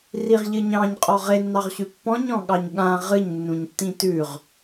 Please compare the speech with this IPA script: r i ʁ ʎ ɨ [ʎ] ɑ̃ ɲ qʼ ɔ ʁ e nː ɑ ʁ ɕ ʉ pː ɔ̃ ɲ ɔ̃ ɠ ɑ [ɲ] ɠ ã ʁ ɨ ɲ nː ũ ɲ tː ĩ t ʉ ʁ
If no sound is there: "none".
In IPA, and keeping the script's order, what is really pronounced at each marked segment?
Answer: ɲ, ɲ

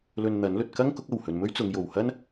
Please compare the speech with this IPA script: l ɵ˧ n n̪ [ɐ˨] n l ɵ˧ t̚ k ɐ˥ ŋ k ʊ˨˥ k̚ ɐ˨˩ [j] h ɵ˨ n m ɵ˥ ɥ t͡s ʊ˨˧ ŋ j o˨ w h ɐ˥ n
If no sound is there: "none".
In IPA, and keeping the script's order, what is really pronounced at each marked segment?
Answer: ɐ˨˥, w

